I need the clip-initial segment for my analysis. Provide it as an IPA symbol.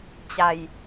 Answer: t͡ɕ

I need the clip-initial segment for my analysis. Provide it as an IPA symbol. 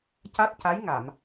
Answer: c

